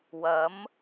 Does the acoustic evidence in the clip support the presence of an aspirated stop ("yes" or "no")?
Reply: no